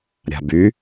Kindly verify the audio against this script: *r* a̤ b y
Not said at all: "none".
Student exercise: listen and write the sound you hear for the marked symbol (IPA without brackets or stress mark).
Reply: ɾʲ